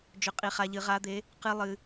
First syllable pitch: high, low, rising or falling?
rising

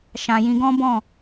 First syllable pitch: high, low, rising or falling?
low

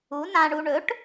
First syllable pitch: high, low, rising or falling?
rising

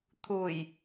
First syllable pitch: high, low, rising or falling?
low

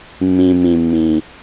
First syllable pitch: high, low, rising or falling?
low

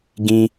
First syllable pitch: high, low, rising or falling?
high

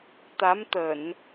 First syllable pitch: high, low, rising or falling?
rising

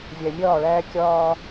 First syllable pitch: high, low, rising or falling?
low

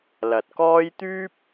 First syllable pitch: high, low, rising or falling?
low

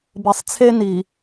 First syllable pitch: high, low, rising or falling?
low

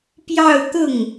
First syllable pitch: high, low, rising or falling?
falling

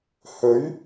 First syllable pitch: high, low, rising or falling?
rising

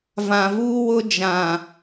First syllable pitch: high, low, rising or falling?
low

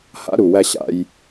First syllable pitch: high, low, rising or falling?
high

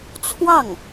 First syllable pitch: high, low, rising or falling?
falling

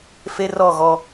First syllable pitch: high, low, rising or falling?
high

